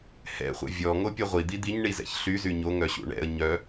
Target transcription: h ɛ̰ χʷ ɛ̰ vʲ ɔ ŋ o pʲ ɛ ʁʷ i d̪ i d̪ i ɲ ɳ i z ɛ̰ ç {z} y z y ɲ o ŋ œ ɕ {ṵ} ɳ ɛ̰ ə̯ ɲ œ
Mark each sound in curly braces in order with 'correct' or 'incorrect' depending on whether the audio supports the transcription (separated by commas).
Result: incorrect, correct